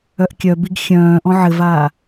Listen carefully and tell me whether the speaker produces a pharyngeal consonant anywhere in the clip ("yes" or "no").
yes